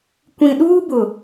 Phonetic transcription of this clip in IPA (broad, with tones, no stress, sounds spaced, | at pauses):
kʷ ĩ˨ ɗ uː˦ b ʊ˨